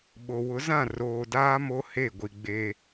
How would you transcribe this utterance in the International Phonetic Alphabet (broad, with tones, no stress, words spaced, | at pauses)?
ɓo˨wʊ˨˦zã˦˨ roː˨daː˦ mo˦ he˦˨ɡʷi˨ɡ͡be˦